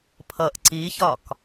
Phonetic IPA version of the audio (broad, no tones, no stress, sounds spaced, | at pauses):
pʰ ʌ ʔ ǀ i ç ɒ k